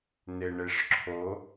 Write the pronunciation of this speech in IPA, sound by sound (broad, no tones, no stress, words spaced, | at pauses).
neɳeʂǁʰo